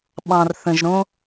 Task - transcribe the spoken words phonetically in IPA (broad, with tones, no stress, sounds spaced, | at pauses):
ɓ ɑ̃˨ r θ ə̃˨ ʒ ɾ õ˦